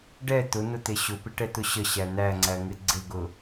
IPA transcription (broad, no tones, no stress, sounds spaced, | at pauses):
ɖ ɛ t̪ ʊ n̪ ʊ t̪ e ɕ ʊ p ɪ ʈ ɛ t̪ ʊ ɕ ə ɕ æ n̪ æ ŋ͡ǀ æ ŋ ɪ ɡ͡ǀ ɪ ɡ ʊ